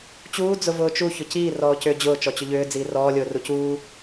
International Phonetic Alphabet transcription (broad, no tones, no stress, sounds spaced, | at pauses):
t͡ɕ uː d͡z ʊ v ʊː t͡ʃ u ç ʊ c iː r ɔː c ʏː d͡ʑ ʊː t͡ʃ ɔ t͡ɕ ʏ ʎ ʏː d͡z iː r ɔː lʲ ʊː r u c uː